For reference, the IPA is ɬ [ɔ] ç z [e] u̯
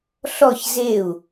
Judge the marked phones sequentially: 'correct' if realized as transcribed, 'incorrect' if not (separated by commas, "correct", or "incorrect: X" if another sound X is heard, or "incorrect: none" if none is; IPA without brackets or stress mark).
correct, correct